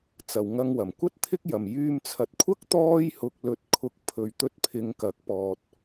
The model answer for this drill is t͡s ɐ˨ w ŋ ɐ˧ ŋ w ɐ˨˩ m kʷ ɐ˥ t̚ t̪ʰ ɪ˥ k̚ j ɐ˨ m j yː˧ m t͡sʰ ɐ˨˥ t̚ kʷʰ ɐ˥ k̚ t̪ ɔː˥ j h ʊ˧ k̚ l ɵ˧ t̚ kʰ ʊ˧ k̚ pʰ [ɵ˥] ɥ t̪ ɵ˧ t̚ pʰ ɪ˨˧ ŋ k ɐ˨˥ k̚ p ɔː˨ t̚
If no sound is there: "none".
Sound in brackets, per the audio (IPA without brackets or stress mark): ɵ˨